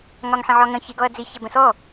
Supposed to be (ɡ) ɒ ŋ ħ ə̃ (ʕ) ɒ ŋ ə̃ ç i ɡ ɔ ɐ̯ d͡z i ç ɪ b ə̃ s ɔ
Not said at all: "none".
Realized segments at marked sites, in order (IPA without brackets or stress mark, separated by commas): ŋ, ʕ